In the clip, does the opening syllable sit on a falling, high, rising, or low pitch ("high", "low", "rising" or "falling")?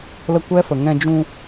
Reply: high